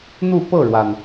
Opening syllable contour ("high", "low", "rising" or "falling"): falling